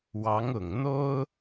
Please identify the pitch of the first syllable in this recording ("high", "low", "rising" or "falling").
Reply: rising